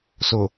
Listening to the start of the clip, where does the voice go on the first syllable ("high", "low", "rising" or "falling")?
low